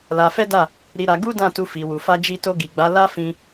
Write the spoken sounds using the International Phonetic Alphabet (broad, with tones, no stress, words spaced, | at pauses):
la˧fɛ˦da˦˨ | ɾi˧ɾa˧ ɡu˦dã˦˨ tu˧fi˨wu˨ fa˧d͡ʒi˧to˧ ɡi˨ɡ͡ba˨˦la˦fĩ˧